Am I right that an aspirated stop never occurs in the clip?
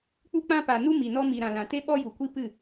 yes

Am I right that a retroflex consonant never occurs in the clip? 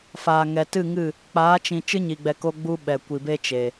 yes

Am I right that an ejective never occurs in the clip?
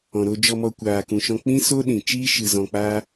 yes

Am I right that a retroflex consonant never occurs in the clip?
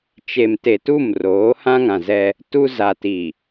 yes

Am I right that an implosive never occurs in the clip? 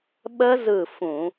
no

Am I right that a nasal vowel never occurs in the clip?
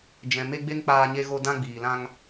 no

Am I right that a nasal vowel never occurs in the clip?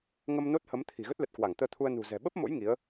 yes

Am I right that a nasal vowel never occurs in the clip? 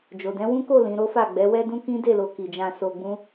no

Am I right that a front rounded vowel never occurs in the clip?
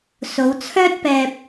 no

